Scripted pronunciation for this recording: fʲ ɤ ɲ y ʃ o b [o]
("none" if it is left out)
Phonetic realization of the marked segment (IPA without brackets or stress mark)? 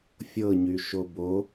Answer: o